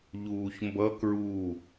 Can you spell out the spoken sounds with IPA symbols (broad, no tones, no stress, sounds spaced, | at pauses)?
ʎ uː ç m b ʌ k ɹ u